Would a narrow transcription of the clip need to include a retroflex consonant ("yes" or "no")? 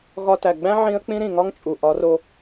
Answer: no